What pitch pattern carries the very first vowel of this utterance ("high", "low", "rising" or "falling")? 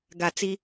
low